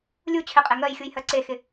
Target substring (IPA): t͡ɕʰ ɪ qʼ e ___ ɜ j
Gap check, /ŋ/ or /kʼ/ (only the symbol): ŋ